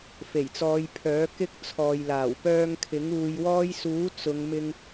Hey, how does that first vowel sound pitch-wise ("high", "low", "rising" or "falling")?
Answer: low